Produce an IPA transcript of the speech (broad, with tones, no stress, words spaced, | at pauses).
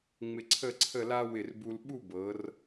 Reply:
ŋ͡mɪ˧ǀʰə˥˧ǀʰə˥˧la˥ wɪ˧˩rbu˧l ɓu˥˧bɤ˩˧r